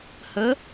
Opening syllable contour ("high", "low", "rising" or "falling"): rising